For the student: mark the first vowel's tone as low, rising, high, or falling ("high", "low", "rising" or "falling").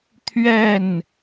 falling